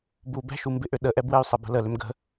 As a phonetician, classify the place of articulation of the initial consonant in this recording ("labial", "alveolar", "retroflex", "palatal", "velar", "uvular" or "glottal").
labial